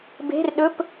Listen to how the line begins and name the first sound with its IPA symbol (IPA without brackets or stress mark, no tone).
b